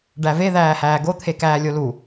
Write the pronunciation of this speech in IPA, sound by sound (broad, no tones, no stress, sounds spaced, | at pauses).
ɖ æ v e ð æː h æː ɡ o t̪ʰ e k æː lʲ o l u